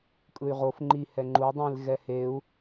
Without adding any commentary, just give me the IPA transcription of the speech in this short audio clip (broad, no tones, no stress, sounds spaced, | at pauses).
kʼ ɯ y̯ ʁ o f ŋ͡ǃ i h ɛ ŋ͡ǃ u dˤ ĩ l ɣ ɛ h e u̯